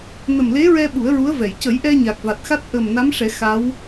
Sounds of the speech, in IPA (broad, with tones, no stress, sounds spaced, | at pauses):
n ə˨˩ m l e˧˥ ɹ ɛ˧ ɓ u˨˩˦ ə̯ ɹ u˧˥ ə̯ v ɛ˨˩˨ j c ə˨˩˦ j ʔ ɛ˧ ɲ a˨˩ k̚ v a˨˩ t̚ x a˦˥ t̚ ʔ ə˨˩ m n a˧˥ m ʂ ɛ˨˩˦ x a˧˥ w